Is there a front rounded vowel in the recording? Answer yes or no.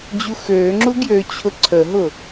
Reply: yes